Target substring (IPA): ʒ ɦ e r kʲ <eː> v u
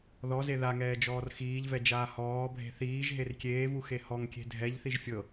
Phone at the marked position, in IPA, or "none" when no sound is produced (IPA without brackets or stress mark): eː